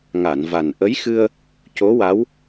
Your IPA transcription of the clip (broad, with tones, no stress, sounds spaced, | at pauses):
ŋ a˨˩˨ n v a˨˩ n ʔ ə˧˥ j x ɨ˧ ə̯ | c o˧˥ w a˧˥ w